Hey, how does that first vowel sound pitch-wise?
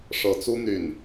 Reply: rising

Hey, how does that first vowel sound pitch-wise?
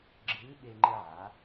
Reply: rising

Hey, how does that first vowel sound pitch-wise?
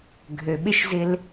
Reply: low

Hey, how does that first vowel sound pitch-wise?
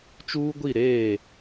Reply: high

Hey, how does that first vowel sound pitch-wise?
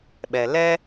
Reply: low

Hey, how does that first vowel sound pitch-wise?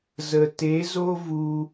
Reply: low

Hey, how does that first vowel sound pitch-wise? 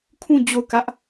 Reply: falling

